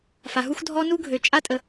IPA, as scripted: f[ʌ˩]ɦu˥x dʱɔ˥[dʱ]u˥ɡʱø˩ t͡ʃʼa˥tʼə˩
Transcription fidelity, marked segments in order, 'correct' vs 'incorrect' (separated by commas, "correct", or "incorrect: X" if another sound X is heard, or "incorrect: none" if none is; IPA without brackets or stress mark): incorrect: a˩, incorrect: n